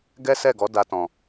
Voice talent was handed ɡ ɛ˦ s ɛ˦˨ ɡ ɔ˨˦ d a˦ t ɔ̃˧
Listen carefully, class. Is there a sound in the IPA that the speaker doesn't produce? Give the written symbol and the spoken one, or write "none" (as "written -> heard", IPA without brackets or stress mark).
none